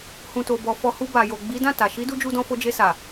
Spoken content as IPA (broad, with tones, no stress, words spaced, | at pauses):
hũ˨to˨bɔ˨fɔ˧ hu˧ ba˨jo˨ ɡ͡bi˨˦dã˦˨ ta˨ ʃi˨˦du˧ d͡ʒu˦dɔ̃˦ fo˧d͡ʒe˧sa˨